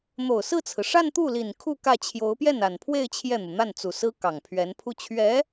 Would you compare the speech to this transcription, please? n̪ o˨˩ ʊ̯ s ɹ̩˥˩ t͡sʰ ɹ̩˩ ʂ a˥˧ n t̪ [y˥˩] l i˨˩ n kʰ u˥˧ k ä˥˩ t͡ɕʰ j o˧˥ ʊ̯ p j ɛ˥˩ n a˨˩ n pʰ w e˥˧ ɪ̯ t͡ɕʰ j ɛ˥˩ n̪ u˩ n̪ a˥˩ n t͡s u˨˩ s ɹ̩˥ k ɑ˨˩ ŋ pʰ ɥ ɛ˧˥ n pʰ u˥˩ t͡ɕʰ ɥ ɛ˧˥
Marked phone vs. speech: incorrect: u˥˩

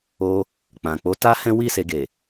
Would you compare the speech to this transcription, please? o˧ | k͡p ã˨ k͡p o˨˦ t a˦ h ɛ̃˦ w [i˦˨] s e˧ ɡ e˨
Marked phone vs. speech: correct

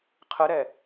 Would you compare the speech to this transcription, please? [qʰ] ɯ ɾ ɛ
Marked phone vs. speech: correct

